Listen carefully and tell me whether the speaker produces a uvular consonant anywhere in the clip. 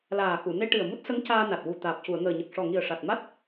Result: no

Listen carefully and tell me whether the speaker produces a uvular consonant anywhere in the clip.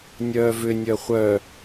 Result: yes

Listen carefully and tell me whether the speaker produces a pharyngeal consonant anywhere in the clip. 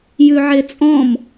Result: yes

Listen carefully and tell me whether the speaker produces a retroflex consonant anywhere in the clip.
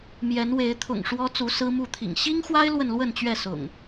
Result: yes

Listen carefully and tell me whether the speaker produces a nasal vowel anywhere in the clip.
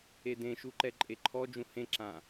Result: yes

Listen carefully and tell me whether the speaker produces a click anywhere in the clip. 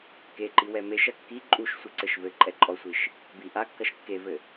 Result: yes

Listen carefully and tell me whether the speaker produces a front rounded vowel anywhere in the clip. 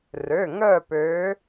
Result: yes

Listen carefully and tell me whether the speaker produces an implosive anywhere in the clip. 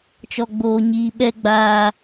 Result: yes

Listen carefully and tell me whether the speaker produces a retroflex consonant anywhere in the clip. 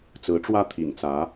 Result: yes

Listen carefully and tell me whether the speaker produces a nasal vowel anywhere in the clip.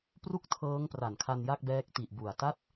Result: no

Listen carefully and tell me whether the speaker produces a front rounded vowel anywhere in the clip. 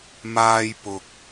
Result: no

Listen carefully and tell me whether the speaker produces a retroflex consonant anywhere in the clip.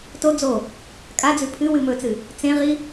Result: no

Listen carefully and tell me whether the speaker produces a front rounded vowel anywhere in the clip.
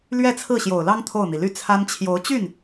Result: yes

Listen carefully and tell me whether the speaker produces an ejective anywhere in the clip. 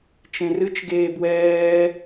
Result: no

